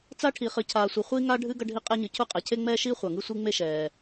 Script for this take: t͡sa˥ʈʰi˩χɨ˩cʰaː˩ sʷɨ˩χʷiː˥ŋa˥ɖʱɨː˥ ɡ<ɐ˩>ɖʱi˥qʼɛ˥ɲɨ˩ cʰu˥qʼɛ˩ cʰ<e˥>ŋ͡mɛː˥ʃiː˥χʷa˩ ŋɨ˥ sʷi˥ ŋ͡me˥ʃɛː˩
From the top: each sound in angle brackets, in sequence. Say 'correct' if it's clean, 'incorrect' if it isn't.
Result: incorrect: ɐ˥, correct

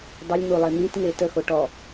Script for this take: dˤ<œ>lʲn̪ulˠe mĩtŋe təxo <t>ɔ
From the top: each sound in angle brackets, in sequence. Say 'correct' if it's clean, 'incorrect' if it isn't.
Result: incorrect: ə, incorrect: ʈ

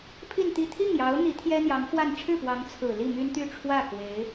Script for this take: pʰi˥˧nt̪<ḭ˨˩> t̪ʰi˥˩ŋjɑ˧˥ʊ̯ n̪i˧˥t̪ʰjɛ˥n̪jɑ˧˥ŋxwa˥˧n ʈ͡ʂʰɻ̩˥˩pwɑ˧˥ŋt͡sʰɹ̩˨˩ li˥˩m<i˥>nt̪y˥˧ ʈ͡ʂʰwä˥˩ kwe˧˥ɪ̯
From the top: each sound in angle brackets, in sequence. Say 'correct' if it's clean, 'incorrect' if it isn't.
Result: incorrect: i˥˧, incorrect: y˥

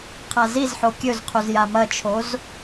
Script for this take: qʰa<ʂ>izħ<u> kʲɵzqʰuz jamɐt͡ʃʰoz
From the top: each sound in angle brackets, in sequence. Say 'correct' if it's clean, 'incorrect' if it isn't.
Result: incorrect: z, incorrect: o

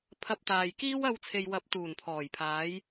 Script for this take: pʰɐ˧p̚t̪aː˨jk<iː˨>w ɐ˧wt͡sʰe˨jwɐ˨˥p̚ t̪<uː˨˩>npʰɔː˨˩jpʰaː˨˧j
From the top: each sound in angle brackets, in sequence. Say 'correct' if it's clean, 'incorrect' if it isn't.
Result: incorrect: iː˥, correct

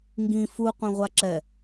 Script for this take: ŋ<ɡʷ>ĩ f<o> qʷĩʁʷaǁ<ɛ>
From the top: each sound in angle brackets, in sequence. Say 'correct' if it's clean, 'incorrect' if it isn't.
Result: incorrect: ɡ, incorrect: u, correct

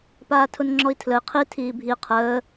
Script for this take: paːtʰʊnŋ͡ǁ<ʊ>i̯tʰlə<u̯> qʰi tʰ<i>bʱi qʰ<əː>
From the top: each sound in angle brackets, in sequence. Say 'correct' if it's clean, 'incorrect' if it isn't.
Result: incorrect: ɔ, incorrect: i̯, incorrect: iː, correct

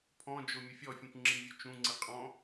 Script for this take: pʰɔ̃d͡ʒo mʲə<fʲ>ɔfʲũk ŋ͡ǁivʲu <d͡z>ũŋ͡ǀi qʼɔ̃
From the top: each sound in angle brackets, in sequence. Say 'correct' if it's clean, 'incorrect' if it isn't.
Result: correct, incorrect: t͡ʃ

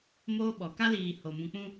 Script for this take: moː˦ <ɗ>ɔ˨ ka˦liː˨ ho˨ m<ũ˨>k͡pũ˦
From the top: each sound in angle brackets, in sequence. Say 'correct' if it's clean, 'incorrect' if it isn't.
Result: incorrect: ɓ, correct

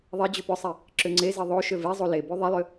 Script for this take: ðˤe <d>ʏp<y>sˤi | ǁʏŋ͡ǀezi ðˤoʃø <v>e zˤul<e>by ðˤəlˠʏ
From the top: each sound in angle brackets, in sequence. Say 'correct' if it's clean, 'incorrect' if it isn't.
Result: incorrect: d͡ʑ, incorrect: ʏ, correct, correct

